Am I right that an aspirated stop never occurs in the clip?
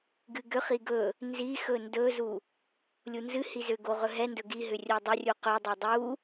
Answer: yes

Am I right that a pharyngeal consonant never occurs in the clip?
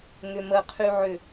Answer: no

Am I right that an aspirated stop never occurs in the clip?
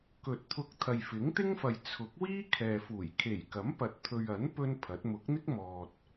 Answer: no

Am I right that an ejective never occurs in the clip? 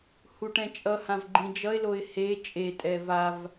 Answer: no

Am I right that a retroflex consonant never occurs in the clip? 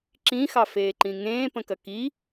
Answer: yes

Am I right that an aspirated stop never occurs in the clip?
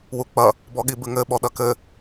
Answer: yes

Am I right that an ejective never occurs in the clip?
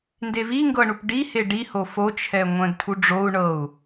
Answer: yes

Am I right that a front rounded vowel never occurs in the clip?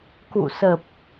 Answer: yes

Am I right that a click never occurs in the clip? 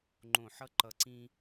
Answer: no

